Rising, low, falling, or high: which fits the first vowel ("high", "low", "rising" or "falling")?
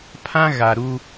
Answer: high